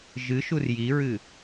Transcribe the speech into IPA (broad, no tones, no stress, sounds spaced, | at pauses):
ʒ ɨ ʃ u r j i ɹ ɨ